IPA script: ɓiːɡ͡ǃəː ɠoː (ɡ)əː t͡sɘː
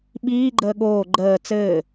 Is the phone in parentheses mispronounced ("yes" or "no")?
yes